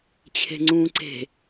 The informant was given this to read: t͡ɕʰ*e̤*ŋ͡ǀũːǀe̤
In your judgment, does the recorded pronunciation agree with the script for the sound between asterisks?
yes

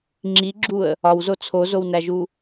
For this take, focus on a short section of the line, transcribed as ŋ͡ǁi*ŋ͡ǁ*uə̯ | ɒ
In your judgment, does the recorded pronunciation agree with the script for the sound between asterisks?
no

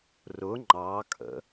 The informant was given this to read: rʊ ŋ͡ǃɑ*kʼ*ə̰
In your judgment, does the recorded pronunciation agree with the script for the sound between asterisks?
yes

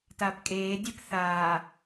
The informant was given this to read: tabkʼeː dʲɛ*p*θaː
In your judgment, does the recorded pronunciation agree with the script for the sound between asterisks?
yes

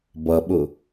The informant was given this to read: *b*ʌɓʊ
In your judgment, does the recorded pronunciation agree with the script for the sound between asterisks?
yes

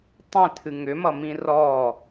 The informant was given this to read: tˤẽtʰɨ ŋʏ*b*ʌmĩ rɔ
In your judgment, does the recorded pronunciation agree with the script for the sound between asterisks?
no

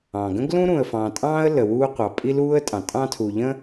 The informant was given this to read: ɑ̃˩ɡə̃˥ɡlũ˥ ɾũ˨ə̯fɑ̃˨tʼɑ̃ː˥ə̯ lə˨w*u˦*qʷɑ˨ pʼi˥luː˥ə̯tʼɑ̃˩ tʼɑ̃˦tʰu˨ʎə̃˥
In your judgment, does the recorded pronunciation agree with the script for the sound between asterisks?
no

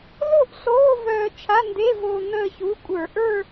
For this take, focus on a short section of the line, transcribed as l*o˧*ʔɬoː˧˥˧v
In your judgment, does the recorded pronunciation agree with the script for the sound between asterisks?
no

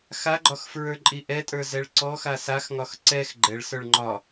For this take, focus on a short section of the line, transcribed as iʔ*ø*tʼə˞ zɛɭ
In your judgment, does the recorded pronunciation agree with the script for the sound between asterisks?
no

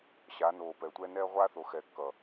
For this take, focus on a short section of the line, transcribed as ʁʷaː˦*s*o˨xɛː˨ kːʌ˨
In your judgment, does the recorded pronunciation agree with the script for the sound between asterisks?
no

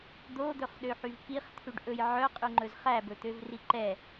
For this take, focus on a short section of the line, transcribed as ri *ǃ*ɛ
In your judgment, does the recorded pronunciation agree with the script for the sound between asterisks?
yes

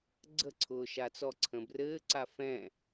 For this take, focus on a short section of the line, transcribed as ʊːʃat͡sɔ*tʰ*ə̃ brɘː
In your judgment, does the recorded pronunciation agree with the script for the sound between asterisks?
no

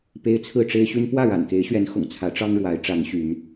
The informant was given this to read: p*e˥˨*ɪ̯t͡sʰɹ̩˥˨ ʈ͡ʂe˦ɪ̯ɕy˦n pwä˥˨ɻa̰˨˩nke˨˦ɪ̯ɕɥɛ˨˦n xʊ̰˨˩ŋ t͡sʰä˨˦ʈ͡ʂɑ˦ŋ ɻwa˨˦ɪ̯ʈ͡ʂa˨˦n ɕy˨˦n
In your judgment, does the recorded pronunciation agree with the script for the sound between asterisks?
no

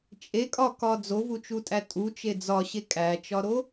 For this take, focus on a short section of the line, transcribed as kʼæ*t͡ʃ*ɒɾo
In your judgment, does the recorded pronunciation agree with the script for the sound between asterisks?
yes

